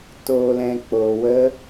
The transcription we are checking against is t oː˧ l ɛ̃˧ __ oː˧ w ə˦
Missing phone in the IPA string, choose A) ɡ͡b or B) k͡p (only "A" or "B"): B